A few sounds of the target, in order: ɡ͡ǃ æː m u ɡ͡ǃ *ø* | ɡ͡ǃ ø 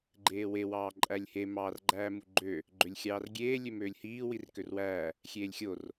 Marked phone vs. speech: correct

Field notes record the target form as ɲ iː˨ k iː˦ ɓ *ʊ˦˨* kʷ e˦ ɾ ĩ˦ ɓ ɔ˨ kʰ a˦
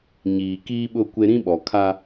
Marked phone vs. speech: correct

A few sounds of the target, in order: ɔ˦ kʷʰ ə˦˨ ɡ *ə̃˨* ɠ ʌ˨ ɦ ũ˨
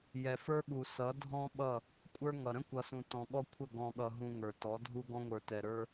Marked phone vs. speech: incorrect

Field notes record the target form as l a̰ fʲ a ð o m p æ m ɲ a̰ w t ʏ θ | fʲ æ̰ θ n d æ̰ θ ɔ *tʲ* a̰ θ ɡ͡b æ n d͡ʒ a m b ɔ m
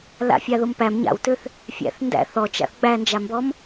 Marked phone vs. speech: incorrect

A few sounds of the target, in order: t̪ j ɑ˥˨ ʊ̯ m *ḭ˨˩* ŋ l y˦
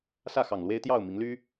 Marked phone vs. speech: incorrect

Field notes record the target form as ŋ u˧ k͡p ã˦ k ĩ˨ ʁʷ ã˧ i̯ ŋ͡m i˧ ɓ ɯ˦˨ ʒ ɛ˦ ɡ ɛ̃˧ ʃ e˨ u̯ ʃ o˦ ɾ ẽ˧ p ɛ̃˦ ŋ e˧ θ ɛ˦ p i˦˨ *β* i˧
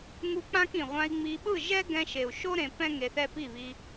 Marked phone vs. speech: correct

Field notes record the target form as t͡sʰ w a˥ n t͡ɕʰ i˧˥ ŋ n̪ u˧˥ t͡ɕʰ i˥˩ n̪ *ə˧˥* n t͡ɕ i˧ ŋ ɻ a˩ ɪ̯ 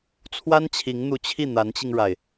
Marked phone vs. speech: incorrect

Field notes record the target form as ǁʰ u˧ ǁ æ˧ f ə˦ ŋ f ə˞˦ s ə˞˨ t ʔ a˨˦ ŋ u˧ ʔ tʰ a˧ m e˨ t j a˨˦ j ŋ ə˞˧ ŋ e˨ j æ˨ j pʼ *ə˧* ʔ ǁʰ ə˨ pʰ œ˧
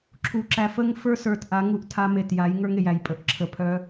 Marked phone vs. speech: correct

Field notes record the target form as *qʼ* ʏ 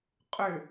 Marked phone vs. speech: correct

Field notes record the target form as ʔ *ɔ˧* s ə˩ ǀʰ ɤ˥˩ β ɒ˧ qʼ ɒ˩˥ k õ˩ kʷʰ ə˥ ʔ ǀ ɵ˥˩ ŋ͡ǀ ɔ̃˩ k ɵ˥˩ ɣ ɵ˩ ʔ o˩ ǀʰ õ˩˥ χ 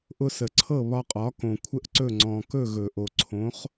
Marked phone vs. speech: incorrect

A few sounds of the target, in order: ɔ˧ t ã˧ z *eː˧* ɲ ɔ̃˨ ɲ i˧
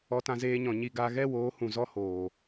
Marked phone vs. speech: correct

